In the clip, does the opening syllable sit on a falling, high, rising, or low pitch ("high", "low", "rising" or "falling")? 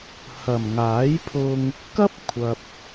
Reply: low